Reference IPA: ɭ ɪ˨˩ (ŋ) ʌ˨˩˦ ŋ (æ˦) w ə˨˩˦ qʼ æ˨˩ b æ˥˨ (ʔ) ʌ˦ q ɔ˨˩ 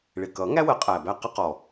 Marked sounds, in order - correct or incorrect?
incorrect: k, correct, incorrect: q

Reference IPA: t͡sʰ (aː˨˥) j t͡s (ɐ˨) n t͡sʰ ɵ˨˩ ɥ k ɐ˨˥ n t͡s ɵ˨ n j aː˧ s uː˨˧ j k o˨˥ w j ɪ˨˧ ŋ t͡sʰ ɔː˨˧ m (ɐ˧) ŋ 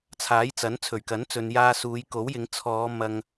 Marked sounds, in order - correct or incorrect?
correct, incorrect: ɐ˨˥, incorrect: ɐ˨

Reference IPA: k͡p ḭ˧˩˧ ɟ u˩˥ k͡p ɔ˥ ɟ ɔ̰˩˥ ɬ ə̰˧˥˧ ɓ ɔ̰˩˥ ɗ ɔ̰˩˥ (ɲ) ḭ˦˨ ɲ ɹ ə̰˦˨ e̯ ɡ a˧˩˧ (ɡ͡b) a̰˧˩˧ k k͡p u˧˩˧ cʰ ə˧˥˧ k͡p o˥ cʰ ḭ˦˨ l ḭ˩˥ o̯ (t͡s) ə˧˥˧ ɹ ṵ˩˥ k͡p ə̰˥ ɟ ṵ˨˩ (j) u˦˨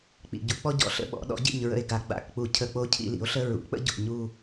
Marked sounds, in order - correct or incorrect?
incorrect: ɟ, correct, incorrect: ɬ, incorrect: ɲ

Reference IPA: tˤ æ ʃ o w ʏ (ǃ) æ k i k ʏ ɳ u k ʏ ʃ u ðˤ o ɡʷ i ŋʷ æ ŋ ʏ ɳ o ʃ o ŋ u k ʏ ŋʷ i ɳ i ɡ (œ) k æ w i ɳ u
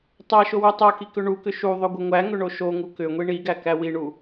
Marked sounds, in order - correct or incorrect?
incorrect: tˤ, incorrect: æ

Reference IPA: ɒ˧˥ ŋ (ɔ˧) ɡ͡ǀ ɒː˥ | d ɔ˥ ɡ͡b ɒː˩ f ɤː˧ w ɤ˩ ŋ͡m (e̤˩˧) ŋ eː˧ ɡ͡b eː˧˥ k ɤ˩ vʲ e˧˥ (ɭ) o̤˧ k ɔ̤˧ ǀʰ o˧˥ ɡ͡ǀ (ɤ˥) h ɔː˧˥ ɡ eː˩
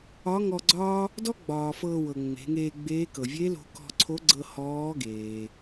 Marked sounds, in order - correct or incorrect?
correct, correct, incorrect: l, incorrect: ɤ˧

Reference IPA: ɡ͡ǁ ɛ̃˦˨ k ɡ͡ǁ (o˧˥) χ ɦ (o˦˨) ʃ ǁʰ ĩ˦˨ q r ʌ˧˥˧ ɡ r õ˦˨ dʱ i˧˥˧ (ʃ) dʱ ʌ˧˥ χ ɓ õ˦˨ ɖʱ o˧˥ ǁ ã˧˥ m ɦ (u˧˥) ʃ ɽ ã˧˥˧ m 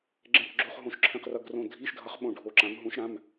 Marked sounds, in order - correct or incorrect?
incorrect: o˧˥˧, incorrect: õ˦˨, correct, incorrect: ũ˧˥

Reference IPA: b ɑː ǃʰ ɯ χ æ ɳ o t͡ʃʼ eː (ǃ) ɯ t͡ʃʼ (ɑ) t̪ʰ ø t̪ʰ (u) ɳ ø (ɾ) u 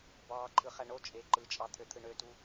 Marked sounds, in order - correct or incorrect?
correct, correct, incorrect: ɯ, incorrect: t

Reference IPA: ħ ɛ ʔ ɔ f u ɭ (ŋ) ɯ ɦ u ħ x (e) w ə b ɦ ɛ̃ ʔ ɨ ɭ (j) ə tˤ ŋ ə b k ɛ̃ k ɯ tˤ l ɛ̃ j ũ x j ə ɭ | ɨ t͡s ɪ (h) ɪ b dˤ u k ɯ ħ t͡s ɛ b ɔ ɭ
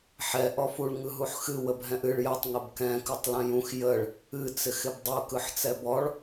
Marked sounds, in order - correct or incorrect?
correct, incorrect: ɨ, correct, incorrect: x

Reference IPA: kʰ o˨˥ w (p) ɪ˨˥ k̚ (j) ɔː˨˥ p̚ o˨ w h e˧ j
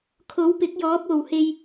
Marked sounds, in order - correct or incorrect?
correct, correct

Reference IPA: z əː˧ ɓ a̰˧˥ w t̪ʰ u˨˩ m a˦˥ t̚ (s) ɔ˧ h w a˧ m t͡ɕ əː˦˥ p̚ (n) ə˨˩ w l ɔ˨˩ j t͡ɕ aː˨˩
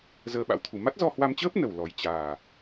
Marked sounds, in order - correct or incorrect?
incorrect: z, correct

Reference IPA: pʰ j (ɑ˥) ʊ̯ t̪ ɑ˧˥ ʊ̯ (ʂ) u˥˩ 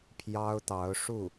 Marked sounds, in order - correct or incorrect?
correct, correct

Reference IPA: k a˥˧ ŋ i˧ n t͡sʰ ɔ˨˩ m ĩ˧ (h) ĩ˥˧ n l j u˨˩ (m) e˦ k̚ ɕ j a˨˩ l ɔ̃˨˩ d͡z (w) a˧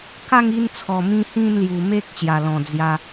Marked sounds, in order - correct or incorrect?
correct, correct, incorrect: j

